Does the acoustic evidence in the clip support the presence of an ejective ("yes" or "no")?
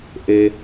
no